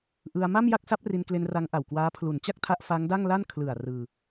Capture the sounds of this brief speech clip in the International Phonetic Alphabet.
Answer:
ʔɯ˧a̯ ma˥˩mja˥˩k̚ sa˦˥p̚ri˧nkle˧n ra˦˥ŋʔa˨˩wkwaː˦˥ pʰlu˨˩n t͡ɕa˥˩k̚tʰa˦˥ʔ fa˦˥ŋda˥˩ŋla˥˩n kʰlɯ˨˩a̯ rɯː˧

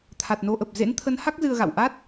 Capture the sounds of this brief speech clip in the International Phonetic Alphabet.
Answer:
t̪ʰa˨˩t̚no˧ʔə˨˩p̚ zḛ˧˥nt̪ʰə˨˦nha˦˥k̚ zɨ˧ə̯ɣa̰˧˨w ʔa˦˥t̚

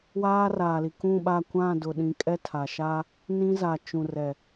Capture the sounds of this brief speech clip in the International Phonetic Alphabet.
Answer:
waː˦ raː˨li˨ kũ˦˨ɓa˦˨ kʷã˦˨dʊ˨ ɗĩ˨kʼɛ˦ tʰa˨ ʃa˦ | nĩ˦za˨ t͡ʃũ˨rɛ˨

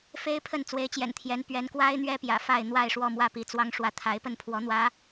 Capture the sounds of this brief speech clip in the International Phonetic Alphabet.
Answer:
fe˦ɪ̯pʰə˥˨n t͡swe˨˦ɪ̯t͡ɕjɛ̰˨˩nt̪ʰjɛ˨˦n pɥɛ˨˦nkwa˦ɪ̯n̪ɥɛ˦ pjä̰˨˩fa˥˨ɪ̯ n̪wa˥˨ɪ̯ʂwɔ˥˨mwä˥˨ pi˨˦t͡swɑ˦ŋʂwä˥˨ t̪ʰa˨˦ɪ̯pə˥˨npʰwɔ˨˦n̪wä˨˦

